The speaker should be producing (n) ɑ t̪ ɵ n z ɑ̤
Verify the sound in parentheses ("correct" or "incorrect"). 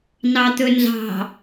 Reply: correct